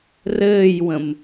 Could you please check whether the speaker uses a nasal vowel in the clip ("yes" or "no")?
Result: yes